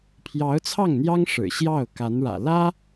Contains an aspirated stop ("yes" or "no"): yes